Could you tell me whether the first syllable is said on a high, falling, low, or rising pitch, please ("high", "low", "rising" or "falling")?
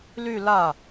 falling